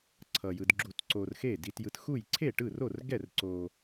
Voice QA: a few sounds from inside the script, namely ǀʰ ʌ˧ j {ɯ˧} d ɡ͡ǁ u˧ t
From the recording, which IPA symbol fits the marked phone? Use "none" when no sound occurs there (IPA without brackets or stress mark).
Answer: ɯ˧